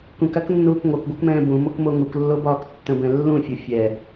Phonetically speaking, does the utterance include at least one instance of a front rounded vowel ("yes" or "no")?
yes